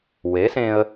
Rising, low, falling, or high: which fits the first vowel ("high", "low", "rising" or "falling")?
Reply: rising